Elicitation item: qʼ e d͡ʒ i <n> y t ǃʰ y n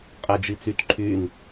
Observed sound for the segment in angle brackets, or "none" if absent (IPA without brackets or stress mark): t͡s